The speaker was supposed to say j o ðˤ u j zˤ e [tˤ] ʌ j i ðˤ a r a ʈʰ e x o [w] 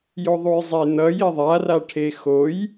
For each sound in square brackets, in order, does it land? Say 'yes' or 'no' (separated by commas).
no, no